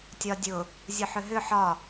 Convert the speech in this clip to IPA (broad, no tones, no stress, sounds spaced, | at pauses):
tʲ ɒ dʲ ʊ | zʲ ʊ ħ ʏ ɦ ʏ ħ ɒ